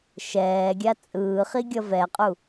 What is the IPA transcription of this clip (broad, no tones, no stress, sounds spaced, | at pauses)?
ʃ ɛː ɡʲ a t͡sʼ ɯː χ i ɡʲ ʌ v ɛ qʼ u